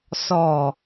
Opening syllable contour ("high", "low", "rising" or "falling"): low